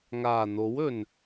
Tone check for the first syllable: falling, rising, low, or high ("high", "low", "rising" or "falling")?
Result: low